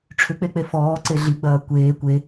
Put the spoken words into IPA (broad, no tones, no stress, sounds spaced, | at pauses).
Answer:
ʈ͡ʂʰ ʏ k͡p e k͡p e f ɔː ǀ e ɮ i ɡ͡b ɐː kʷ eː kʷ e